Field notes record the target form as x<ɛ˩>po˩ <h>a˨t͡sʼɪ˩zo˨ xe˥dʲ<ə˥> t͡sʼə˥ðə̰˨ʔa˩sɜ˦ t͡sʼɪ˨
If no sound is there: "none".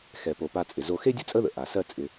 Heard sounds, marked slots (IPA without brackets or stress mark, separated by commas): ɛ˩, p, ə˥